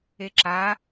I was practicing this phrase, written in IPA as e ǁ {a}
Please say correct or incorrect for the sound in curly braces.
correct